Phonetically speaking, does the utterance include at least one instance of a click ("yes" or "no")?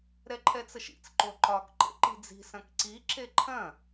yes